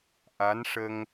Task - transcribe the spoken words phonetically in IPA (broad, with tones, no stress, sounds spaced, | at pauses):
ʔ a˧˥ n ʂ ə˧ ŋ